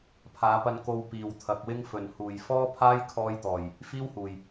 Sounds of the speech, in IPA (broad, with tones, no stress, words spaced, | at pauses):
pʰaː˨˧pɐ˧n ko˧wpiː˨˩wt̪ʰɐ˨k̚wɪ˥ŋ fɵ˨˩nhuː˨˩j fɔː˥pʰaː˥j kʰɔː˧jt̪ɔː˨˩j | fiː˥whuː˨˩j